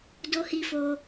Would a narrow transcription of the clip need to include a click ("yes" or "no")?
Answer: no